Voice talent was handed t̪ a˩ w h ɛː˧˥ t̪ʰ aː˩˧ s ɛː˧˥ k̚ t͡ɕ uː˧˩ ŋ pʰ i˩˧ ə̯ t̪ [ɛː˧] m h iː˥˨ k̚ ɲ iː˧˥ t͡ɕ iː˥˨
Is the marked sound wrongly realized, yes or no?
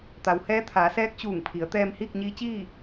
no